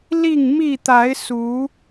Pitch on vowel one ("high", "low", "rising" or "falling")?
falling